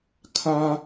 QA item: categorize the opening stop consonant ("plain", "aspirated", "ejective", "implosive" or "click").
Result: aspirated